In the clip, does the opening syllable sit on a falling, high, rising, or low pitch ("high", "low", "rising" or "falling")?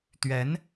rising